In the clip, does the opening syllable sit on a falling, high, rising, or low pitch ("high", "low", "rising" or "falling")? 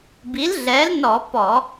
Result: rising